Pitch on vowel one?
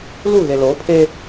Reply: falling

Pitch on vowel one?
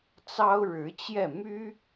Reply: high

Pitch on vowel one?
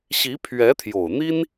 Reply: rising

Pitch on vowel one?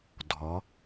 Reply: rising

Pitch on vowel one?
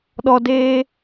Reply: high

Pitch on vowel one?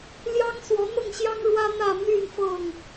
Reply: high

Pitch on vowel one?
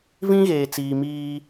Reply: high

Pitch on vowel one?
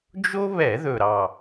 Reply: high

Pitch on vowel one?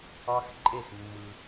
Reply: high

